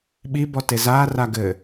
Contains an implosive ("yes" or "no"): yes